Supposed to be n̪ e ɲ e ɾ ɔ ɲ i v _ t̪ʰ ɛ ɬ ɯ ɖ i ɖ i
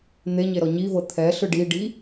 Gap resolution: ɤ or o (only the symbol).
ɤ